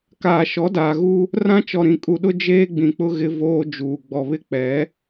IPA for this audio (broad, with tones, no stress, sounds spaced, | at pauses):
k aː˨ ʃ ɔ˨˦ d aː˨ ɣ u˦ | r ã˦ t͡ʃ ɔ˨ ɾ ĩ˨ kʼ u˨ ɗ ʊ˦ d͡ʒ eː˦ ɡ͡b ĩ˨ k͡p ʊ˦ ɣ ɪ˦ v oː˦ d͡ʒ uː˨ ɡ͡b ɔ˨ β ɪ˦ k͡p ɛ˨˦